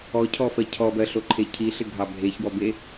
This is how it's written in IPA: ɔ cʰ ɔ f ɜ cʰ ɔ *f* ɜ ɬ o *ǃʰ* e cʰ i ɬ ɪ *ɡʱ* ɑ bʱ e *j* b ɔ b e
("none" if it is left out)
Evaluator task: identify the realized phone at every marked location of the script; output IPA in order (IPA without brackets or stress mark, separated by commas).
b, ǃʰ, ɡʱ, ç